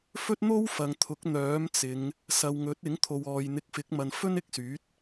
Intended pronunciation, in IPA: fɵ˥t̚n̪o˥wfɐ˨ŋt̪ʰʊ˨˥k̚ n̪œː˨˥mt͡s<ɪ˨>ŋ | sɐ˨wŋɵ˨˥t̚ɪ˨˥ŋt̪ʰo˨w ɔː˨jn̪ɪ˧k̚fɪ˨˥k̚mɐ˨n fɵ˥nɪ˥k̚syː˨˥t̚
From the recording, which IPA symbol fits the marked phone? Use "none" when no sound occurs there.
ɪ˨˧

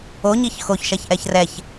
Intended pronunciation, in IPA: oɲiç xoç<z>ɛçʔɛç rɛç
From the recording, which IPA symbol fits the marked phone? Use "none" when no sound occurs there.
ʃ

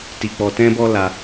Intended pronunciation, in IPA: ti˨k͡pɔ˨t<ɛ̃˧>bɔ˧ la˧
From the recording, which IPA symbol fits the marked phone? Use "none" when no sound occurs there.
ɛ̃˧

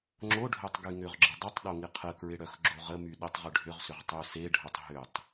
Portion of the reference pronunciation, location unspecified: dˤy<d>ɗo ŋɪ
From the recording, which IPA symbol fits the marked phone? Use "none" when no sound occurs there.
tˤ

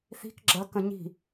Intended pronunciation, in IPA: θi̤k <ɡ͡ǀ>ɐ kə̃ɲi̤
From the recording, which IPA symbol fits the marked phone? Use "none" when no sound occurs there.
ɡ͡ǁ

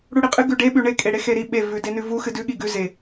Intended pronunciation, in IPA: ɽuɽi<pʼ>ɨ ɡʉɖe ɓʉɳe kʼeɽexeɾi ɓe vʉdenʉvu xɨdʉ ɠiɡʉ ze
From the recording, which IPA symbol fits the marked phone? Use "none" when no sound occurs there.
qʼ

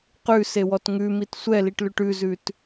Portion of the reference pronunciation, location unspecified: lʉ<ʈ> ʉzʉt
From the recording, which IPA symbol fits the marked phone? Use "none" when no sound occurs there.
ʈ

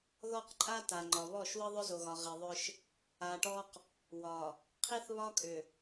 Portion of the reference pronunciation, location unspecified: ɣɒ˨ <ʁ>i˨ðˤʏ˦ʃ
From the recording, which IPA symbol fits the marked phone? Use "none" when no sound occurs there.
ʁ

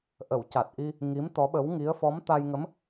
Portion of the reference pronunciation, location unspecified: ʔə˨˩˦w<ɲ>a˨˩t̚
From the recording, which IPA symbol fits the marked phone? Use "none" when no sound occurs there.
c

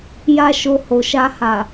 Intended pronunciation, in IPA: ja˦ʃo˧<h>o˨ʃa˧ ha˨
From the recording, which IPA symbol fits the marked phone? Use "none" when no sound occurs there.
h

